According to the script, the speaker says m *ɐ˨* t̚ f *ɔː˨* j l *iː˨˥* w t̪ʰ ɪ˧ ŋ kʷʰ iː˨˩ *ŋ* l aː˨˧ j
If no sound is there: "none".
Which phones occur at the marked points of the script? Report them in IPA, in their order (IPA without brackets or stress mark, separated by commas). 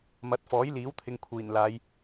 ɐ˨˥, ɔː˨˥, iː˨˥, n